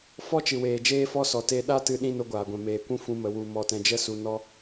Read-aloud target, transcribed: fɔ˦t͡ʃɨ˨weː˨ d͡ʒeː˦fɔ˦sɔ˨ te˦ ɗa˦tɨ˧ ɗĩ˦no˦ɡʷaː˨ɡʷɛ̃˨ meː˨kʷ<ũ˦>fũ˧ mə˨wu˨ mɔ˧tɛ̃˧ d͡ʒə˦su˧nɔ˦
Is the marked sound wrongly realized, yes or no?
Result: no